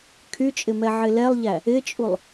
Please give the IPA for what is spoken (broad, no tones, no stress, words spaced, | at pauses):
kʰyt͡ʃʼɪ mɛʕɪlɛlˠʎæ | ɪt͡ʃʼulˠ